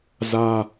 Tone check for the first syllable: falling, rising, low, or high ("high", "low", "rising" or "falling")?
high